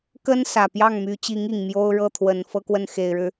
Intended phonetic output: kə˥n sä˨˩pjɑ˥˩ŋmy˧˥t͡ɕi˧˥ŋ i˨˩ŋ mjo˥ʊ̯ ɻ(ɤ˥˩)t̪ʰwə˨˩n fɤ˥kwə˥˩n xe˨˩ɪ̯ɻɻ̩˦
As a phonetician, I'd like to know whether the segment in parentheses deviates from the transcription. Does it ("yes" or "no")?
no